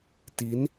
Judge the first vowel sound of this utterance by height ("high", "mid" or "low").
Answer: high